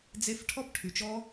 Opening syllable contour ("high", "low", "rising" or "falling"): high